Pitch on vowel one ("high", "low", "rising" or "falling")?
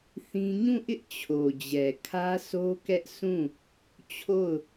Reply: high